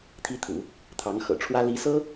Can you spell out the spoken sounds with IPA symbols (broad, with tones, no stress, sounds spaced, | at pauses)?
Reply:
t̪ʰ i˥ t̪ʰ ṵ˨˩˦ | t̪ʰ ɑ˧˥ ŋ x ɤ̰˨˩ ʈ͡ʂʰ w ä˥ l i˧˥ s ɤ˥